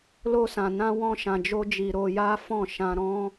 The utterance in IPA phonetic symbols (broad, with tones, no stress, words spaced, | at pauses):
lo˧sã˨nã˧ wɔ̃˧ʃã˨d͡ʒo˧d͡ʒi˨ ɾo˧ja˦fɔ̃˦˨ ʃã˧ɾɔ̃˦